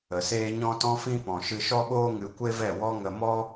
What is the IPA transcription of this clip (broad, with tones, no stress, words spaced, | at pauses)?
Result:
ə˨seː˦ ɲɔ̃˦tɔ̃˦fĩ˦ pɔ̃˨ʃɨ˧ʃɔ˦ɓoː˦ ŋɨ˧kʷe˦vɛ˦˨wɔ˦ ŋə˧mɔ˦